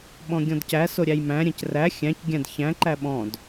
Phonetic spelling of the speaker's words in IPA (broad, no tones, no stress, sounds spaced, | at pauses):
ɓ ɔ̃ ɡʲ ɔ̃ d c æ s o ɾʲ æ j m æ̃ ɾʲ ɛ̃ c r æ xʲ æ̃ c ɡʲ æ̃ d ç æ̃ ǃ æ ɓ ɔ̃ d